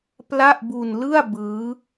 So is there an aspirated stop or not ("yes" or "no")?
no